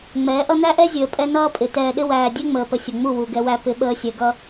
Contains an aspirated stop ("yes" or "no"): no